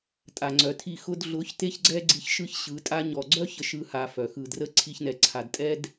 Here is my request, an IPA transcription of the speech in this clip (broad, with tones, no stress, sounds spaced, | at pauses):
tʼ a˨ ŋ͡ǀ œ˨ tʰ i˦˨ x ʊ˦ d ɮ ʊ˨˦ ç t e˦ ç ɡ͡ǀ ɛ˦ ɡ͡ǀ i˧ ç ʃ ɯ˦ ç ɕ ɯ˨˦ tʼ a˦ ɲ ɔ˨ ɡ͡ǀ œ˦ ç ə˦ ʃ ɯ˦ h a˧ f œ˨ x ɯ˨ d r ə˦ ǀʰ i˧ ç n ɛ˨ ǀʰ a˨ d tʼ ɛ˦ d